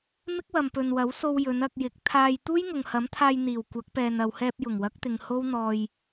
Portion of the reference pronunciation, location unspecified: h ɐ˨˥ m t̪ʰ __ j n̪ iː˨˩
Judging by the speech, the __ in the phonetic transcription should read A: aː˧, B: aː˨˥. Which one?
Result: A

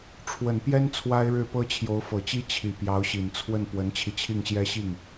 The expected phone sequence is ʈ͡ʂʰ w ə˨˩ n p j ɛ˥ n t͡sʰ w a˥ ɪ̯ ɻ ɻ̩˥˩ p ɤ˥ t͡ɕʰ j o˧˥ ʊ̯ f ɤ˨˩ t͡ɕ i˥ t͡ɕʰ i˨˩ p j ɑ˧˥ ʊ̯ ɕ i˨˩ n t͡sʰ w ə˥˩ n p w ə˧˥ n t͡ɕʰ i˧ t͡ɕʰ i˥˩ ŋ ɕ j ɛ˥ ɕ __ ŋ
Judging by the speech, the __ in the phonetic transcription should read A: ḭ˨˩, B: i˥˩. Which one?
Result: B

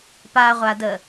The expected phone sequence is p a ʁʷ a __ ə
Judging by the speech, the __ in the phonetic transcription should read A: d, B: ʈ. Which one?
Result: A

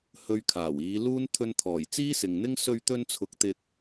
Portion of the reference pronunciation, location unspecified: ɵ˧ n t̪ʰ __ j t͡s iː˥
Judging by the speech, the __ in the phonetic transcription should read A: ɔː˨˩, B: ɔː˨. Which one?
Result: A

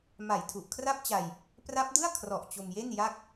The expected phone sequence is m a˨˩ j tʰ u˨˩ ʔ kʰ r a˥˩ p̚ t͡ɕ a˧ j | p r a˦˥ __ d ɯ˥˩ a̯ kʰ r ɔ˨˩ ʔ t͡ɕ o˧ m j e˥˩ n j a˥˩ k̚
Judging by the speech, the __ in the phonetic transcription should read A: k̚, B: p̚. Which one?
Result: B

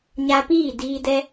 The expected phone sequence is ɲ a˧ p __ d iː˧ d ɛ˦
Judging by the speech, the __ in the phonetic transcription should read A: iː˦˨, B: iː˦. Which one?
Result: A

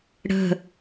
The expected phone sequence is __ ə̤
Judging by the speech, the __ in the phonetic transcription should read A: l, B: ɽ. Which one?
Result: B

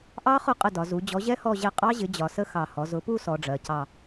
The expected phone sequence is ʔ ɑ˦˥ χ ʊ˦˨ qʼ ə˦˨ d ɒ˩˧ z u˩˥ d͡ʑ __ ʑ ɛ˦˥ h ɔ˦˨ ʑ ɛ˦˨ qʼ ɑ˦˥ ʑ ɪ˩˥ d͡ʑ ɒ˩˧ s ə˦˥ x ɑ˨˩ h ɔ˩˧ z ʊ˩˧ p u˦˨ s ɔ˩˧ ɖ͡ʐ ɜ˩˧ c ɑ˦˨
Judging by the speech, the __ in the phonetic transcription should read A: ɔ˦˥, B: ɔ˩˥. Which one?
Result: B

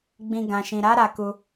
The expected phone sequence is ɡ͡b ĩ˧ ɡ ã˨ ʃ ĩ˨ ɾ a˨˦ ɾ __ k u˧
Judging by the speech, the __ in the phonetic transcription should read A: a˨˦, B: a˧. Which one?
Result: B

